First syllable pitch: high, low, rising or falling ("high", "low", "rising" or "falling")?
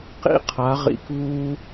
high